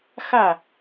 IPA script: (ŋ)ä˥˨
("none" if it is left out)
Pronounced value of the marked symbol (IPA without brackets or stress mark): x